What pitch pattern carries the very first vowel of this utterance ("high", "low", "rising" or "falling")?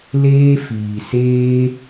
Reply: high